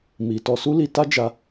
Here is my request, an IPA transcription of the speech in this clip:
m i˨ t ɔ˧ s u˦ l i˧ t a˦ d͡ʒ a˧

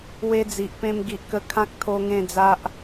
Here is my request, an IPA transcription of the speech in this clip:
w e˦ d͡z i˨ ʔ p ẽ˦ m ɡ i˨ ʔ k ə˧ kʰ ã˦ k̚ t̪ʰ o˦ ŋ ẽ˥˧ d͡z a˦ ʔ

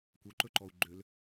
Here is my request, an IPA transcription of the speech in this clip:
kʷ œ ǃ ɵ ǃ ɔ u̯ ɡ͡ǃ ø l

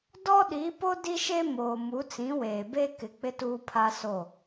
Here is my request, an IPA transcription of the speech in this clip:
d ɔ˦ ɗ i˨˦ p o˦ d i˦ ʃ e˦ m oː˨ m u˨˦ t͡s ĩ˨˦ w eː˨ b e˦ k ɪ˨ k͡p ɪ˦ t uː˦ pʰ a˦ s o˦˨

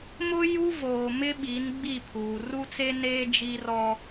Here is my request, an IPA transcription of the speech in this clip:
m ʊ˦ j u˦ v oː˨ m ɪ˦ ɓ iː˨˦ n ɡ͡b i˦˨ pʰ uː˨ r u˦ t͡s e˦ n eː˦ d͡ʒ i˦ r ɔ˦

